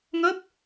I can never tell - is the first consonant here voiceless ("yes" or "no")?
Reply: no